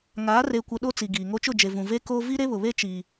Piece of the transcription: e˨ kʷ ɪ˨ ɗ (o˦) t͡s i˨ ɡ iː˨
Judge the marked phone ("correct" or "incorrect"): correct